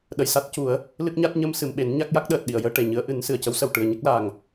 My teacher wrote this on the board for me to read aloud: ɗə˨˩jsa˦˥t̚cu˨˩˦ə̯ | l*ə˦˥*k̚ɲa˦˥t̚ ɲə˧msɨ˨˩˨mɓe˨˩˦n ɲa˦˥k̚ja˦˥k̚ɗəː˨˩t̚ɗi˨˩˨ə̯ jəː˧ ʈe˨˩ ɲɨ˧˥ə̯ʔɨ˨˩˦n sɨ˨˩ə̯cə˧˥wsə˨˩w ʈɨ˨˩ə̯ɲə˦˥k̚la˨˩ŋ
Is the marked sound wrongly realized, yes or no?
yes